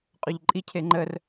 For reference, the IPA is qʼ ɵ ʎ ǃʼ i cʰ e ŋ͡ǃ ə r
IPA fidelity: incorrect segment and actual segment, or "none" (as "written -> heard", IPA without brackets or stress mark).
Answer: none